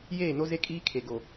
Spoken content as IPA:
j eː˦˨ n o˦ z e˦ kʼ iː˦ kʰ e˨ ɡ o˨

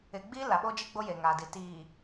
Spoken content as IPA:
ɪ˨ ɡ͡b i˦ l a˨ ɓ o˦ d͡ʒ i˦ ɡ͡b o˦ j e˨ ŋ a˨ d i˨ t iː˨

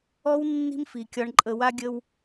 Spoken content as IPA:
ɔ˧ w nː i̤˧ m f i˩ kʲ ɒ˧ ɳ ǃʼ ə˧ w a˥ ɡʲ ə˥ w

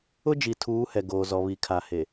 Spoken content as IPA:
ʊ˦ d͡ʒ i˨ tʰ uː˨˦ h ɛ˨ ɡ oː˨ z ɔ˨ β i˨ kʰ a˨ h e˨

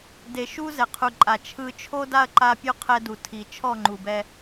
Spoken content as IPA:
d e˨ ʃ u˦ z ɛ˨ qʰ u˨ ǃʼ a˨ t͡ʃʰ ɯ˦ t͡ʃʰ o˦ d a˦ ɐ̯ ǃ a˦ pʲ u˦ qʰ ɛ˦ d u˨ tʰ i˨ t͡ʃʰ ɔ˦˨ ŋ͡ǃ u˨ b ɛ˦

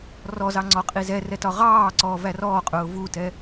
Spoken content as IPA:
r ɔ z ɑ ŋ͡ǀ ɔ qʼ i z ɛ r ɛ t ɒ ʁ ɑː ǀ ɔː v æ r ɔː qʼ ʊː v u t ɛ

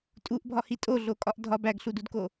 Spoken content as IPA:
tʼ u ʔ bʱ ɒ h i tʼ o ɮ o kʼ ɒ ʔ dʱ ɒ b æ ɡ ɬ u d u d k o

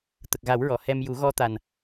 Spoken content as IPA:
t̪ ə˨˩ k̚ ɣ a˨˩˦ w ɹ ɔ˨˩˨ h ɛ˧ m j u˨˩˦ ɣ ɔ˧ t̪ a˨˩ n

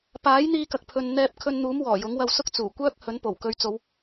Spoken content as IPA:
p aː˨˥ j n̪ iː˧ k ɐ˨ k̚ pʰ ɵ˨ n n̪ ɛː˧ p̚ kʰ ɵ˧ n n̪ uː˨˥ m w ɔː˨˩ j ʊ˨˥ ŋ w ɐ˧ w s ʊ˥ k̚ t͡s uː˨˩ kʷ œː˥ k̚ h ɵ˨˥ n p o˨˩ w k ɵ˨˧ ɥ t͡s o˨˧ w

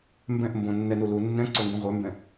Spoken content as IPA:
m b ɛ̃ ʔ m b õ nː ɛ n u l u nː ɛ̃ ǀ o ŋ ɡ õ ʁʷ œ m b ɛ̃

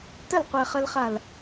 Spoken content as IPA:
t ə l qʷ ɛ χ ə l χ a l

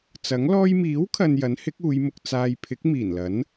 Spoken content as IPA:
t͡s ɐ˨˥ ŋ l ɔː˥ j m iː˨˥ w kʰ ɐ˨ n j ɐ˨˥ n h ɪ˨˥ k̚ uː˨˧ j m ʊ˧ k̚ t͡s aː˧ j pʰ ɪ˨˥ k̚ m iː˨˩ n l ɐ˨˥ n

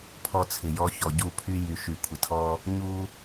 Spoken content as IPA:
pʰ ɔ˦ t͡sʰ ɪ˨ j ɔ˦ ç ɔ˨ ɟ u˦˨ pʰ y˦ j y˨ ʃ y˨ kʷʰ ɪ˨ tʰ ɔ˦ | ɲ u˦

